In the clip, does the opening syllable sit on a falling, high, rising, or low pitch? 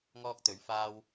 high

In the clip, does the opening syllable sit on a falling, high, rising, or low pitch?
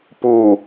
low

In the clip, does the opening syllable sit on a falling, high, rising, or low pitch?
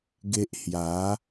high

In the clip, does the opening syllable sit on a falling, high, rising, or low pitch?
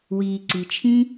low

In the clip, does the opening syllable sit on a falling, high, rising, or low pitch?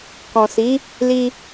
low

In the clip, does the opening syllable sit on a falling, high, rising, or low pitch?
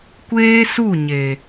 high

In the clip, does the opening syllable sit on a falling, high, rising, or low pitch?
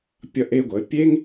high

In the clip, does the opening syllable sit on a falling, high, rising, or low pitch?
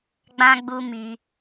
high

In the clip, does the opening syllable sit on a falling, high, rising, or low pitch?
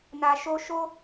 low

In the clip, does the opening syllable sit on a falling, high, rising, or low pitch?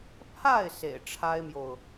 falling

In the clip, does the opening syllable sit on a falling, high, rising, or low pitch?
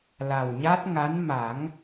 low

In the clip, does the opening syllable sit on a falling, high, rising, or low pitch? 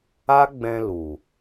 high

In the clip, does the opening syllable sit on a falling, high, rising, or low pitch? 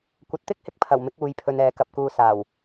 low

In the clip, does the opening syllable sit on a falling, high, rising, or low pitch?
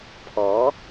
rising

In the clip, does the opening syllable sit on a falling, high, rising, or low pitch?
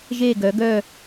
falling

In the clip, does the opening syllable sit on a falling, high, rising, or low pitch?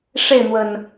falling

